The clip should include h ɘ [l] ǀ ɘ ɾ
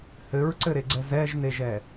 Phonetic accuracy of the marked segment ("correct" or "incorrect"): incorrect